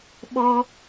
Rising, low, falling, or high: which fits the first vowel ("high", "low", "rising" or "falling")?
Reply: high